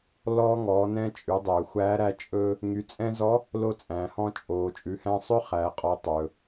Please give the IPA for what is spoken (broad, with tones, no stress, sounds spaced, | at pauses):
l ɔː˧ ŋ ɔː˩˧ n ɛ̃˧ t͡ʃʼ ʉ˩˧ dˤ ɵː˩ xʷ æː˧˥ ɾ æ˧˥ t͡ʃʼ ɵː˧ | ŋ y˩˧ t͡sʼ ɛ̃˧ z ɔ˧˥ | l o˧ t͡sʼ æ̃˩ h ɔ̃˧ t͡ʃʼ oː˩ t͡ʃʼ ʉ˩˧ h æ̃˧ sˤ ɵ˥ χ æː˩ qʼ ɔ˩˧ tˤ ɵː˩